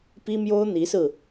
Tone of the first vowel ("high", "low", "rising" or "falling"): high